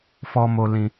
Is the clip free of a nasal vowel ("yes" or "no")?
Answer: no